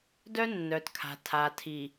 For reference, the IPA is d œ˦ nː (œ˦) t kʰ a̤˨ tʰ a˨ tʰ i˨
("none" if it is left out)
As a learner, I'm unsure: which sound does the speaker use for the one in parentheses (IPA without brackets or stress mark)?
œ˨